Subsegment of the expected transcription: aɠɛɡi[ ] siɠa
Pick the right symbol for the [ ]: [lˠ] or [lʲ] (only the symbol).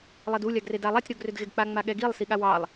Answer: lˠ